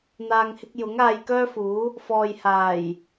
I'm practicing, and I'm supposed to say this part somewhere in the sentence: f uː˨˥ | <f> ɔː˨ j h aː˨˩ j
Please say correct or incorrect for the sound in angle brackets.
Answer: correct